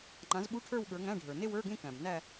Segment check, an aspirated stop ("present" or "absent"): present